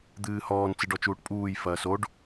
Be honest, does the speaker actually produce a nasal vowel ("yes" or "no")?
no